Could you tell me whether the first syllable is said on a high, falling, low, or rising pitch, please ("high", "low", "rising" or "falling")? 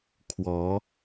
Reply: rising